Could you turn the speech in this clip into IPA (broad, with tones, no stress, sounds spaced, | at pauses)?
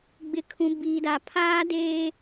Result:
ɡ͡b ɪ˨ kʰ ũ˨ b iː˨ d aː˨ pʰ aː˦ d eː˦